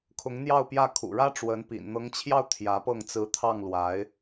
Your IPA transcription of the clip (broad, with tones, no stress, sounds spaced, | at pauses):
kʰ ʊ˧˥ ŋ n̪ j ɑ˥˧ ʊ̯ p j ä˥˩ kʰ ṵ˨˩ ɻ ä˥ ʈ͡ʂ w ə˧˥ n p ḭ˨˩ n n̪ ɤ˧˥ ŋ t͡ɕʰ j ɑ˥˩ ʊ̯ t̪ʰ j ä˧˥ p ɤ˥˩ ŋ t͡s ɹ̩˧˥ t̪ʰ ɑ˥˩ ŋ l w a˧˥ ɪ̯